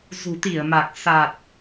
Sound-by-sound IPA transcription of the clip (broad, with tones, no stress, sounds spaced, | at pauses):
z ṳ˨˩ t̪ i˧˩ ə̯ m a˨˩ k̚ s a˨˩ t̚